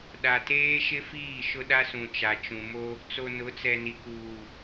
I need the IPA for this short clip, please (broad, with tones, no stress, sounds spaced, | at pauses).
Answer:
ɗ a˨ t eː˦ ʃ ɪ˦ f iː˦˨ ʃ ʊ˦ ɗ a˦ s ũ˨ t͡ʃ a˨ t͡ʃ ũ˨ m o˦ | t͡s o˨ n ʊ˨˦ t͡s ɛ˨ n i˨ k uː˨